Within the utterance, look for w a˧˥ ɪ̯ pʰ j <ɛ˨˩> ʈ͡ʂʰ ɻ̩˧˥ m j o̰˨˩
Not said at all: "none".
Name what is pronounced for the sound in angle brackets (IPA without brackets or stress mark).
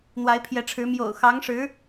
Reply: ɛ˧˥